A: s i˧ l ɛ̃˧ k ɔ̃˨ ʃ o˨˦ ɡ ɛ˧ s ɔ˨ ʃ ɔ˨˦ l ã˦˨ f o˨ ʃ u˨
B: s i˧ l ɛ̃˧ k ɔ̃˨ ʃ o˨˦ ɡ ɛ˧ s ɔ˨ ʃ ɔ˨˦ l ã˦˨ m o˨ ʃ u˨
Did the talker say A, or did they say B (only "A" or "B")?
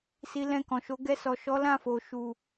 A